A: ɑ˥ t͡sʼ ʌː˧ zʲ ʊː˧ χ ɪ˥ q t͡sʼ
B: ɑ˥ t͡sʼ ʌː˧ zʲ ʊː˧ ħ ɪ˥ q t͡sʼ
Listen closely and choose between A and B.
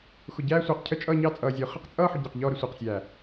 A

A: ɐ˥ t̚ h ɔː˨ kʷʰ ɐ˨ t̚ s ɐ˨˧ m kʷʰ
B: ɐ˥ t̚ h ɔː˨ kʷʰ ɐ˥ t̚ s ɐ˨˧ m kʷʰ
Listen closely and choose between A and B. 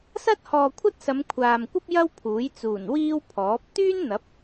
B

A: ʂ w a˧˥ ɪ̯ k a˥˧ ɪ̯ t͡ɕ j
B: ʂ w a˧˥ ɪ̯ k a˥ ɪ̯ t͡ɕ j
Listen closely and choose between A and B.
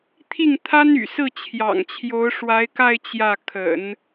A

